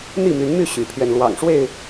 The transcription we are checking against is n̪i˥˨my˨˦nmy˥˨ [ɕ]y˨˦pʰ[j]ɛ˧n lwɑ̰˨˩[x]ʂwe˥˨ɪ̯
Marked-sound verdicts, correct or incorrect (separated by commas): correct, incorrect, incorrect